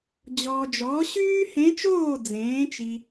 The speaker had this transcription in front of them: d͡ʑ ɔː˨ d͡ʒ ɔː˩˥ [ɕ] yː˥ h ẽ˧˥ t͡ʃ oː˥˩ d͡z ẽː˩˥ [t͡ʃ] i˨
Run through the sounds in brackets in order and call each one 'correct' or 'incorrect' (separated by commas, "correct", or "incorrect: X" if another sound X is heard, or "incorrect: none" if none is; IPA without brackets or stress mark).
correct, correct